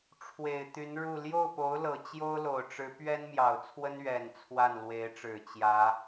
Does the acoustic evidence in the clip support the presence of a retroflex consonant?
yes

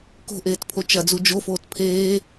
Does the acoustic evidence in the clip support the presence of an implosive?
no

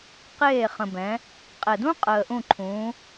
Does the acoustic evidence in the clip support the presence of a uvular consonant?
yes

